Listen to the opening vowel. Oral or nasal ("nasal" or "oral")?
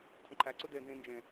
nasal